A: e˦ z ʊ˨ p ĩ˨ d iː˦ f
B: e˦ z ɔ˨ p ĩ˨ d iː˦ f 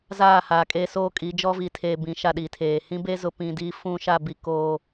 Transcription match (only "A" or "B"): A